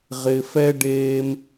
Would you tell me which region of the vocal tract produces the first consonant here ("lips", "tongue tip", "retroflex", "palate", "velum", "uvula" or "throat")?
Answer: uvula